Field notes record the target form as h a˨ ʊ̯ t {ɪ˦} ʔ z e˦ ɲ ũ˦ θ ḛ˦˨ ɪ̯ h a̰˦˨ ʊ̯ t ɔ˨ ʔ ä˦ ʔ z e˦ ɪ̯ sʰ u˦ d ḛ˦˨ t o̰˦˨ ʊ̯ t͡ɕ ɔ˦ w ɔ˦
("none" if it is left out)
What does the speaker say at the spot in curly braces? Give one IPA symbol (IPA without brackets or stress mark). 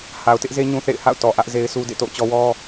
ɪ˦